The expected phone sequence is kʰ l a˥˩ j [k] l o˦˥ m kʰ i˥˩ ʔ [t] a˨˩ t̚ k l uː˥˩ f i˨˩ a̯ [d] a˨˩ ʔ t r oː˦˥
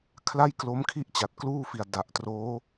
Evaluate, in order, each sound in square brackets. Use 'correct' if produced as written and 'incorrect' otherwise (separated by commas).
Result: correct, incorrect, correct